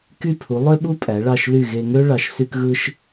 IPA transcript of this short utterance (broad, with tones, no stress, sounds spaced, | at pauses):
k y˥˩ pʰ u˩˥ lˠ ø˥ ɓ u˥ pʼ æ˩˥ ɭ ɑ˥˩ ʃ l y˥˩ ɣ e˧ ŋ ø˥ ɭ ɑ˩˥ ʃ s y˧ k ɣ ɯ˧ ʃ